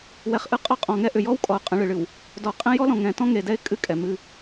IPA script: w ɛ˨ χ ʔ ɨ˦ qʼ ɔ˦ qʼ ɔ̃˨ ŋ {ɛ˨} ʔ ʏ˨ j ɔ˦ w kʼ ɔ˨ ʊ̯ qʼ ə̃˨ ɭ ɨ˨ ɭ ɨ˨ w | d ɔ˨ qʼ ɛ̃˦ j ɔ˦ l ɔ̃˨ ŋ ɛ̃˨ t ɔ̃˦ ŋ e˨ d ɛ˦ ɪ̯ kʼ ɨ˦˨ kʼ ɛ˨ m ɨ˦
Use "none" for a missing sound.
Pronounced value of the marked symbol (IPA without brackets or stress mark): ɛ˦